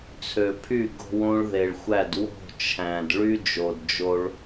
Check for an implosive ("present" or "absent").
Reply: absent